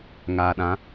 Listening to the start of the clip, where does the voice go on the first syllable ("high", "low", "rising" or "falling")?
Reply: low